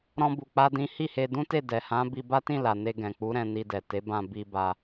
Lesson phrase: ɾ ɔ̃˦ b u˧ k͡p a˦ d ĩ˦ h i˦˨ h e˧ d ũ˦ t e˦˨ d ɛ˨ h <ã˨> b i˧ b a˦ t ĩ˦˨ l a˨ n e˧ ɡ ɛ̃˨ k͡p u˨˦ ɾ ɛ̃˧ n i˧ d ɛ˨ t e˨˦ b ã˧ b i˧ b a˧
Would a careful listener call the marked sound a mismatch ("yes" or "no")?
yes